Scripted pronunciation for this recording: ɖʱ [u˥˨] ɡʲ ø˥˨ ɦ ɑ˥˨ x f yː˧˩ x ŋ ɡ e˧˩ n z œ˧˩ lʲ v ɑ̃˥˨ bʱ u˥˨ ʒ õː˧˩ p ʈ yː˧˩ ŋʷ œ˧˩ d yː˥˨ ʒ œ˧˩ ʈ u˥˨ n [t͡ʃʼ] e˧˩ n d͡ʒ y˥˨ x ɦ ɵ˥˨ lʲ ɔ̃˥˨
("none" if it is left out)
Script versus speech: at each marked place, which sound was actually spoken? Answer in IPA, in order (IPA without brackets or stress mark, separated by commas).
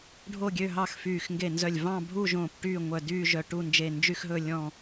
o˥˨, d͡ʒ